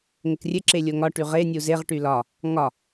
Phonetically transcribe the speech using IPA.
ŋ ɘ k rʲ ɘ ǁ e lʲ o ŋ ɒ ʈ y ʁ e nʲ u z e ʁ ʈ y l ɒ | ŋ ɒ

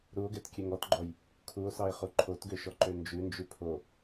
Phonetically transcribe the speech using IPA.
ɾ u o̯ ɡ ɛ t kʲ ø ŋ ɔ t ɡ͡ǃ ɔ j | kʰ u o̯ s ɑ e̯ χ u ǃʰ o t ɡ ø ʃ ɔ ǃ ø n d͡ʒ ʉ n d͡ʒ ʉ pʰ o

